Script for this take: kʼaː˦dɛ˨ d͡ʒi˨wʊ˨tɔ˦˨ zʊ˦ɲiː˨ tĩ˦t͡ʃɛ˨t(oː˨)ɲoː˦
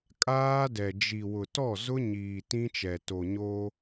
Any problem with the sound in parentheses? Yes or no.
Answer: yes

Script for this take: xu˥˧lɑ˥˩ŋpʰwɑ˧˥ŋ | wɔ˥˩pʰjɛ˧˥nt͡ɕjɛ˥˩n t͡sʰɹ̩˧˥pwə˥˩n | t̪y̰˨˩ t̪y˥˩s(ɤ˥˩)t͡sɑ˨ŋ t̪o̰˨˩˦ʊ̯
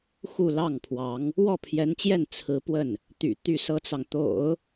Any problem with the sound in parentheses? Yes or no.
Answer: yes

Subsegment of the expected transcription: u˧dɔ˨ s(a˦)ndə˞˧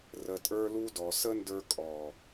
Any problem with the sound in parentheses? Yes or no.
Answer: yes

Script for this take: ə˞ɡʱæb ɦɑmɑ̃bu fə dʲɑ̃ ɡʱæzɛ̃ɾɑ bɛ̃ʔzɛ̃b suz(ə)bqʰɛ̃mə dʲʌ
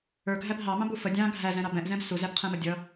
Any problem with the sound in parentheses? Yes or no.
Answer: yes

